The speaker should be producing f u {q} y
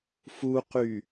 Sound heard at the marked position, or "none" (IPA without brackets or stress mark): q